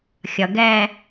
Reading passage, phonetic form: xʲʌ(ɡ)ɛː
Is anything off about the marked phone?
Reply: no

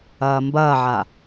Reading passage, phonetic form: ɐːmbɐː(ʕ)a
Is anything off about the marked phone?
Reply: no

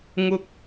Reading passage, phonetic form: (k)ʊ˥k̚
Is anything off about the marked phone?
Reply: yes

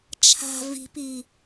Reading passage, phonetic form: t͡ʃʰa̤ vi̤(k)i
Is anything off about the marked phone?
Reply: yes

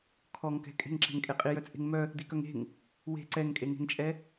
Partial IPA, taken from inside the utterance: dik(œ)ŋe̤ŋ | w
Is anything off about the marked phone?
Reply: no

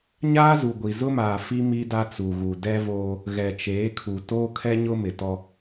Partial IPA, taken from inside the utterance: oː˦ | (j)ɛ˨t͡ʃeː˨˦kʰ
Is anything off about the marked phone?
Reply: yes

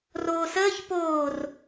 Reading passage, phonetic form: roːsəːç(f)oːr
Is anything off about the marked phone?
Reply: yes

